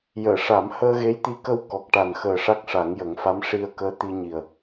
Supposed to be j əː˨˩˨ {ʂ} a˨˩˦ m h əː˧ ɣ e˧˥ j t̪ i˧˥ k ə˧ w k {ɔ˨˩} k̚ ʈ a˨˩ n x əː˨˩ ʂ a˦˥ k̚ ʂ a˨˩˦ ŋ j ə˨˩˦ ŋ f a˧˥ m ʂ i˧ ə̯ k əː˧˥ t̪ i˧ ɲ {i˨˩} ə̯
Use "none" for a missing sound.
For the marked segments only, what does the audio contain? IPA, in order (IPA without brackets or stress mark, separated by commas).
ʂ, ɔ˨˩, i˨˩